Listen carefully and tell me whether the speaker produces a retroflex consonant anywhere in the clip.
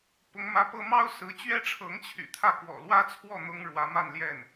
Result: yes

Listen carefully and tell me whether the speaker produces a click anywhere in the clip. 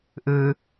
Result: no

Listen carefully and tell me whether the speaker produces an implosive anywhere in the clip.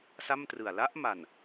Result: no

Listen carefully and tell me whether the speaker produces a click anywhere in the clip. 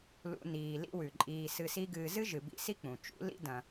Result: yes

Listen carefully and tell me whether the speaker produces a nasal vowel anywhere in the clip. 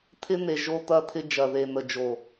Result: no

